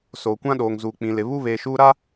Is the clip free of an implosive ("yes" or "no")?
no